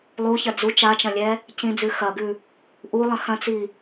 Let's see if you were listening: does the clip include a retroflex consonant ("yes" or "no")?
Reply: no